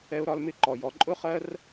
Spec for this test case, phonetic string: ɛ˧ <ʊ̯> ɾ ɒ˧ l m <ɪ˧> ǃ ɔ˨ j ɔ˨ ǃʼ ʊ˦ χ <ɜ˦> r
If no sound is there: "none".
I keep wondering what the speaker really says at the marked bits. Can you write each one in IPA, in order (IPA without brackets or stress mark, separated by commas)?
ʊ̯, ɪ˧, ɜ˦